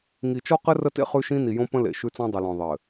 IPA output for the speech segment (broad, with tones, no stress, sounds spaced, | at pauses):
ŋ i˨ t͡ʃ ɔ˦ q ɘ˦ r ə˦ t ḛ˦ χ ʉ˦ ʃ ĩ˦ n i˨ j õ˦ p ə̃˦ l ḛ˨ ʃ ʉ˦ t͡s ɔ̃˦ dˤ ɨ˨ l ɔ̃˨ ðˤ ɘ˨